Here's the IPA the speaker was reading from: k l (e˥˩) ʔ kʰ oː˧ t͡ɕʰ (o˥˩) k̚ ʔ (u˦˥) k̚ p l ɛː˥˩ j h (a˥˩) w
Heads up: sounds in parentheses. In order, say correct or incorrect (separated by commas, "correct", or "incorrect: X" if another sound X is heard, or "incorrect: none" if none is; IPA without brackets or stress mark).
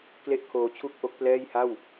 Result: correct, incorrect: u˥˩, incorrect: o˦˥, correct